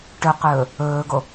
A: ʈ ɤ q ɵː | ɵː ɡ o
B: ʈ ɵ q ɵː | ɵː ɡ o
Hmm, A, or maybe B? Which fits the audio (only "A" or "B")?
B